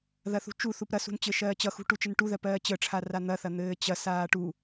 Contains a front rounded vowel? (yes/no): no